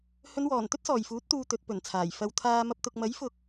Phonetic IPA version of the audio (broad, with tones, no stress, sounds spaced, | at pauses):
h ɵ˨˧ n w ɔː˨˩ n t̪ ɵ˥ t̚ s ɔː˨˩ j f uː˨˥ t̚ t̪ uː˧ t̪ ɵ˨˥ t̚ p ɵ˨˩ n t͡sʰ aː˨˩ j f ɐ˨˧ w t̪ʰ aː˧ m ɐ˧ p̚ t̪ ʊ˨ k̚ m ɐ˨˥ j f ʊ˨ k̚